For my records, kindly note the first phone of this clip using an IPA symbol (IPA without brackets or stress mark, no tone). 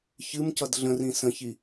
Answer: ç